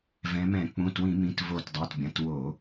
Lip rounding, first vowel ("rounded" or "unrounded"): unrounded